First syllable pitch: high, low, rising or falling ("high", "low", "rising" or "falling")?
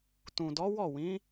low